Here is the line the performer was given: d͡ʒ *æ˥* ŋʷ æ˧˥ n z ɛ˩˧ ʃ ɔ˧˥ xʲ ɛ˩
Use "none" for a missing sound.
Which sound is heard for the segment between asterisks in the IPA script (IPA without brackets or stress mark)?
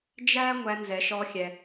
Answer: æ˥